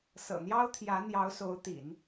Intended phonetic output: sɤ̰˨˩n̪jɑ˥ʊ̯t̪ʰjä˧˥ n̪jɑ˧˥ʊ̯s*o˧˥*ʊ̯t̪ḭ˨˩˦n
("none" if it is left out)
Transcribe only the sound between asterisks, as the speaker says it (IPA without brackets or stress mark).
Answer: o˧˥